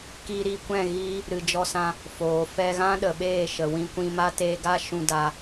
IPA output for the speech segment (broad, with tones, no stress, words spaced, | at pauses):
kiː˧ɾi˦˨kʷɛ̃˦˨ ɣiː˦ | ɾɨ˨d͡ʒɔ˧sã˧ | foː˨ fɛ˧ɣã˦ɗə˨ɓeː˦˨ ʃə˨wĩ˧kʷĩ˧ma˦ teː˧ɡa˦ ʃũ˧daː˧